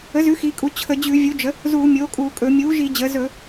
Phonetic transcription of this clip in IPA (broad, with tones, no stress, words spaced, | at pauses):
ə˩˥zʉ˩˥ xi˩˧kʼu˩˧ t͡ɕʰə˧˩˧d͡ʑʉ˧˩˧vʲu˩˥ d͡ʒə˩˥ | zuː˧˩˧mʲoː˩˥kʼuː˧˩˧kʼɵ˧˩˧ mʲuː˩˥ʒi˧˩˧d͡ʑəː˩˧ zɵ˧˩˧